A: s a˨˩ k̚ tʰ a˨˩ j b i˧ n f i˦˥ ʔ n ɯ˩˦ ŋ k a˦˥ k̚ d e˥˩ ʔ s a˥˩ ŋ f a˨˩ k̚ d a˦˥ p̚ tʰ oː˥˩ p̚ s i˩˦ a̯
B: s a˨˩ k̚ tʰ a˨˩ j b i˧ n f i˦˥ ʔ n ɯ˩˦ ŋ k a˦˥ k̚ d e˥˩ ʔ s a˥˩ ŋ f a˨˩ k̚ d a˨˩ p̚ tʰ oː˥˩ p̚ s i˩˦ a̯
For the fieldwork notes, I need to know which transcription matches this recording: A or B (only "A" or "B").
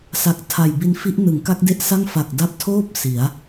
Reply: A